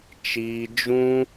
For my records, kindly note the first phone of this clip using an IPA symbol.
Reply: t͡ʃ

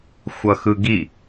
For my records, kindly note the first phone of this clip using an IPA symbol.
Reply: xʷ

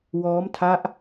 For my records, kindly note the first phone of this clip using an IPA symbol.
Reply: w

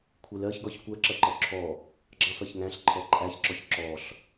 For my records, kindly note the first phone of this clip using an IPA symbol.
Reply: kʷʰ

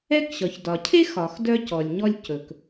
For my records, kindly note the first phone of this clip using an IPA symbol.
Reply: ɛ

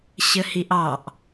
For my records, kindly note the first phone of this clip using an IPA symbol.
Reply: ɕ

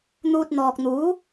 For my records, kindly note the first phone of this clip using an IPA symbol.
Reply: n̪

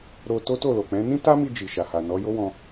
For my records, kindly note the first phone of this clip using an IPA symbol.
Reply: ɾ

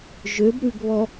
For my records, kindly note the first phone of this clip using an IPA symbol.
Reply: ʒ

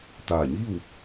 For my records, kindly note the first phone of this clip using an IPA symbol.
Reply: t̪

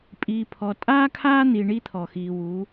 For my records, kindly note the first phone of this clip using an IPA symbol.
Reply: pʼ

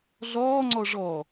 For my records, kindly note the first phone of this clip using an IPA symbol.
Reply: ɮ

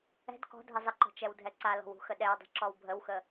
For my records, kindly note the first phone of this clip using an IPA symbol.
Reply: ɛ̤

